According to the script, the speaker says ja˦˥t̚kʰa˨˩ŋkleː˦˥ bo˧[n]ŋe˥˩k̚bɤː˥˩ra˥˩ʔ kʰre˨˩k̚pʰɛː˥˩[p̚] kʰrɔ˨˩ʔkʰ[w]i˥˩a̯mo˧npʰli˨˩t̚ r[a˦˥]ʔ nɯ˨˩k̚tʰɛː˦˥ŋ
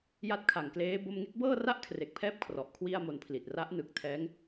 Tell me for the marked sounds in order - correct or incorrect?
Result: incorrect, correct, correct, correct

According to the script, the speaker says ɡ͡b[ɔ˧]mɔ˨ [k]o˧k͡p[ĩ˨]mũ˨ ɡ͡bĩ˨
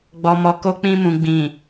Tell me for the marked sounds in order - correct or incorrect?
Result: incorrect, correct, incorrect

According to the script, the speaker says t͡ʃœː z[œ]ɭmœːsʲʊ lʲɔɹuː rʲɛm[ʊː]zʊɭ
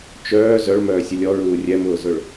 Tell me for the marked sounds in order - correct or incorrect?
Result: correct, correct

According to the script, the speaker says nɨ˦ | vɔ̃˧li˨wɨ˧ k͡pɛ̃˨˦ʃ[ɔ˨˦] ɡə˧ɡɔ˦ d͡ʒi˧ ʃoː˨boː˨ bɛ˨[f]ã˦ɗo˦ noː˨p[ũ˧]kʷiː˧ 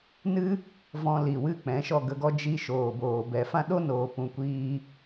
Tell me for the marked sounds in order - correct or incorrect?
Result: incorrect, correct, incorrect

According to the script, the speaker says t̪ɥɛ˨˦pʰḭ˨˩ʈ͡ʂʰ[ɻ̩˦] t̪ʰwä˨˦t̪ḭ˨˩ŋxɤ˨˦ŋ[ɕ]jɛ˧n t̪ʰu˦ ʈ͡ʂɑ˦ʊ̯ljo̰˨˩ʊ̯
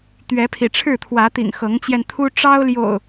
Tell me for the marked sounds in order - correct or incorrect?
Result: incorrect, incorrect

